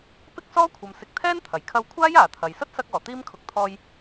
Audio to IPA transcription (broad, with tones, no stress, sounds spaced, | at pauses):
p ɪ˥ k̚ s ɔː˥ kʷʰ ɐ˨ m s ɪ˨˥ k̚ t̪ʰ ɛː˥ n t̪ʰ ɐ˨˩ j kʰ ɐ˧ w kʷʰ aː˥ j aː˨ t̪ʰ ɐ˨ j s ɐ˥ t̚ s ɐ˧ k̚ ɔː˨˩ t̪ iː˥ m kʰ ʊ˨˥ k̚ t̪ʰ ɔː˧ j